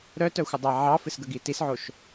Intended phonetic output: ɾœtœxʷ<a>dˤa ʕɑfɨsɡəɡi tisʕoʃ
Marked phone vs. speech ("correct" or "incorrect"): incorrect